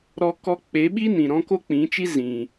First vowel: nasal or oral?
oral